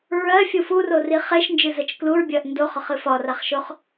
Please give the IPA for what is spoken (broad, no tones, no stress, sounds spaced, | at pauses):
ɹ ɜ fʲ u f u r o r i χ e ʃ n d͡ʒ ɨ z ɜ t͡ʃ k l u ɹ bʲ ɜ ʔ n d o χ ɒ χ ɨ f ɒ r a χ ʃ o χ